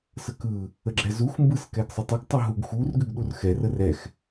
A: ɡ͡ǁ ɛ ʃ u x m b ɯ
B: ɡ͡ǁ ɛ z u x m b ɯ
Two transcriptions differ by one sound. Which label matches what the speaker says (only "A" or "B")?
B